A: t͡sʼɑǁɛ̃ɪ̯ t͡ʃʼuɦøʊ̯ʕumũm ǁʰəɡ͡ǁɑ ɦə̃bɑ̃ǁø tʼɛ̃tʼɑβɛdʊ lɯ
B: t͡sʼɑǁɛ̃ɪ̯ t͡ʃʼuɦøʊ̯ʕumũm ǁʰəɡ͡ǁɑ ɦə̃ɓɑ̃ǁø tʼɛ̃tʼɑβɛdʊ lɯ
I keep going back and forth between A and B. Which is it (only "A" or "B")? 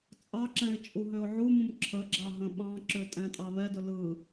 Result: B